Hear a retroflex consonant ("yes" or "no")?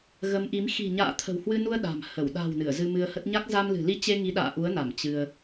no